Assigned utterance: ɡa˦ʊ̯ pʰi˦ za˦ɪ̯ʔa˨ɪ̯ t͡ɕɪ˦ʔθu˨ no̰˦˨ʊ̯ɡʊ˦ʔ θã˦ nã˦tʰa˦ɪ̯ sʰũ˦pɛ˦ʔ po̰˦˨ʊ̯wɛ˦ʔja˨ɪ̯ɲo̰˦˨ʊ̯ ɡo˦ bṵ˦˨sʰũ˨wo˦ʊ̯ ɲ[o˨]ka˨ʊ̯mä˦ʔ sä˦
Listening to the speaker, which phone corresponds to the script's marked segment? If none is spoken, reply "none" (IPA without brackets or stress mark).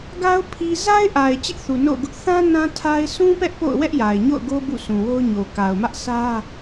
o˨